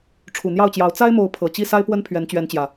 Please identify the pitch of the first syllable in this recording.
low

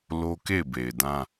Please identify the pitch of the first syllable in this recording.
high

